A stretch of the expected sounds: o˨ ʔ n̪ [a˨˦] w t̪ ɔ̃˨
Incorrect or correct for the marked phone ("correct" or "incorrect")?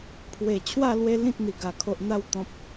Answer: incorrect